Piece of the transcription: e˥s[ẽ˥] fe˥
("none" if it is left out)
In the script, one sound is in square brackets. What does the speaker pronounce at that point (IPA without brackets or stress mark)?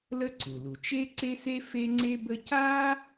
e˥